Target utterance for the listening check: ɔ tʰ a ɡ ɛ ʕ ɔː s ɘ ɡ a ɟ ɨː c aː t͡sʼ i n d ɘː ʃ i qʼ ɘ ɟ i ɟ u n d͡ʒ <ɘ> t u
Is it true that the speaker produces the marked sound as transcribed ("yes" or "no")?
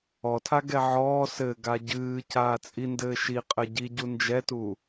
no